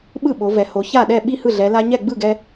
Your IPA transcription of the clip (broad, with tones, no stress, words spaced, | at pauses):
ɓɯ˥˩ɓo˩˧vɛ˩˧ho˩˧ ça˥˩ɗɛ˥˩ ɓi˥˩hɯ˥˩ɮɛ˩˧ la˧ ɲɛ˥˩ɡ͡bɯ˥˩ɡɛ˧